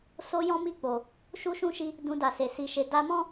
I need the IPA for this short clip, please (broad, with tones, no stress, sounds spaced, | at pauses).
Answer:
s o˦ j ɔ̃˦ m i˦˨ k͡p o˨ | ʃ u˦ ʃ ũ˦ ʃ i˧ | d ũ˧ d a˨ s e˨ s i˧ ʃ e˧ d a˧ m ɔ̃˦